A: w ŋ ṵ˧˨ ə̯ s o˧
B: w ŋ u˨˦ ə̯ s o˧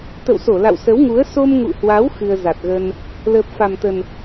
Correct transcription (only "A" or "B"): B